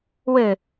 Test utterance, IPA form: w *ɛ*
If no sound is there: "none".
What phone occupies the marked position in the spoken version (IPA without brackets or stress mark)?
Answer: ɘ